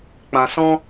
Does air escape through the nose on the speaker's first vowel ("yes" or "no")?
yes